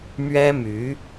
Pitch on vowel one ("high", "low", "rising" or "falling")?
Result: high